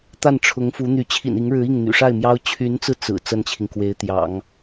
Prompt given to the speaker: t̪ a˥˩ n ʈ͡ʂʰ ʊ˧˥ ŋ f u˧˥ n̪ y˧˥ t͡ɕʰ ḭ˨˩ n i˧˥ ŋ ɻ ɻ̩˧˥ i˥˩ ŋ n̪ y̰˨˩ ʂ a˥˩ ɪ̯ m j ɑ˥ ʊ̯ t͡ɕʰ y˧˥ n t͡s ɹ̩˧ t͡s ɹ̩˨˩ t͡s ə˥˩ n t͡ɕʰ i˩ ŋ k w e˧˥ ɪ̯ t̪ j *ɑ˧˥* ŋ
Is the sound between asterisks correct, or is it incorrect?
incorrect